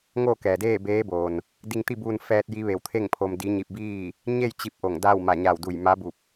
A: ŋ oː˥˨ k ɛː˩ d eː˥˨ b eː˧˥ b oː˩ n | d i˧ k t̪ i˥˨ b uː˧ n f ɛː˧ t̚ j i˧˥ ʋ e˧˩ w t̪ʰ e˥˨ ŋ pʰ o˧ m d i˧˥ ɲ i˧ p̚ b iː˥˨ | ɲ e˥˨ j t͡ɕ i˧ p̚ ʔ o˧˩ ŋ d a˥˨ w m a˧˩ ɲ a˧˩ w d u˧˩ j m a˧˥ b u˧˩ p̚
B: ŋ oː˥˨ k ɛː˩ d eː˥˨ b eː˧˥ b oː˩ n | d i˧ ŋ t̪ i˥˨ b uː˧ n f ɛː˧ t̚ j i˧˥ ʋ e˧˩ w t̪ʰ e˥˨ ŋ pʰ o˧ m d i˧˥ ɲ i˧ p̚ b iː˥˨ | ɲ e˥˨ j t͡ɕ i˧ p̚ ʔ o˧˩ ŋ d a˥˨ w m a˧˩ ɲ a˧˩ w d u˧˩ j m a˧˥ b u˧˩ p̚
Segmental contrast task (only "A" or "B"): B